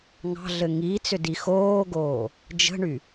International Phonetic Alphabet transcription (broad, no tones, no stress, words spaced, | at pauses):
ŋɑ̤ɮɘ ŋiːt͡sʏdi xoːɡoː | d͡ʒə̤ɳy